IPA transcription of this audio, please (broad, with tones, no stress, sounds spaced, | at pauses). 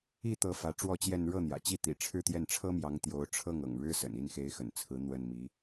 i˥˩ t̪ ɤ˧˥ f ä˧˥ ʈ͡ʂ w ɔ˥˧ t͡ɕ j ɛ˥˧ n ɻ ɤ˥˩ n̪ j ä̰˨˩ t͡ɕ i˥˩ t̪ ḭ˨˩ ʈ͡ʂʰ ɻ̩˥˧ t̪ j ɛ˥˩ n ʈ͡ʂʰ ɤ˥ m j ɑ˧˥ ŋ t̪ j o˧˥ ʊ̯ ʈ͡ʂʰ ɤ˥˩ ŋ ɤ̰˨˩ ŋ ɻ ɻ̩˥ s ə̰˨˩ n i˥˩ n x e˧˥ ɪ̯ x ə̰˨˩ n t͡sʰ ɹ̩˧˥ n̪ w ə˥˩ n m i˧˥